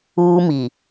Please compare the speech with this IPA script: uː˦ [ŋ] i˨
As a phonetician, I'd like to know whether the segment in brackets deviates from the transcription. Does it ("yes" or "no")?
yes